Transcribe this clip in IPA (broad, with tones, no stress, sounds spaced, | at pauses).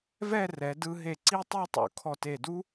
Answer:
v ɛ˥˧ r ɛ˩˧ d ɯ˧ ɦ e˧˩ ǀ i˥˧ tˤ i˥˧ tˤ o̰˩˧ kʰ ɔ˧˩ t e˧˩ d u˥